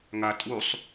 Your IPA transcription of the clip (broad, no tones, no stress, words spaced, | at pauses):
ŋa tʼusˤ